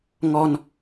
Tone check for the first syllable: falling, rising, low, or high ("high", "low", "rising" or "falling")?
high